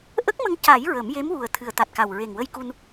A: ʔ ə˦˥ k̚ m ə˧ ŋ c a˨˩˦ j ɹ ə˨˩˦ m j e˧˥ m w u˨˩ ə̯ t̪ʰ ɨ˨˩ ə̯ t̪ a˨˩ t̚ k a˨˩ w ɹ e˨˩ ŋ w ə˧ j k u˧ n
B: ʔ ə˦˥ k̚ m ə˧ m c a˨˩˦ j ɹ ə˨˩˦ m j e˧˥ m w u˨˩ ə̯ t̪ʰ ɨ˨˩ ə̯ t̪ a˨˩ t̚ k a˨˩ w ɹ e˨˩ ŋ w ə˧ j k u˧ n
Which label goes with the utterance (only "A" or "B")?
A